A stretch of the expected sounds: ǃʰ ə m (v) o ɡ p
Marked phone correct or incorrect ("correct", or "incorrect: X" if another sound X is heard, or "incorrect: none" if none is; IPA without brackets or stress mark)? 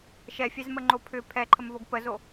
correct